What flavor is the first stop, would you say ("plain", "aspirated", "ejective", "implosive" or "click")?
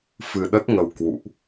implosive